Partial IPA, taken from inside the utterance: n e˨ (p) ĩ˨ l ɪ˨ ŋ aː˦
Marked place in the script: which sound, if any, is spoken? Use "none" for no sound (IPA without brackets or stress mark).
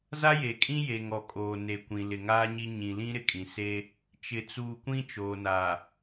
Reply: kʷ